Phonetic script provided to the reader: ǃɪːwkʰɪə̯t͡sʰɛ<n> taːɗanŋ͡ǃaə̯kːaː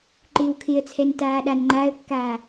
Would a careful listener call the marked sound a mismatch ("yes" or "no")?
no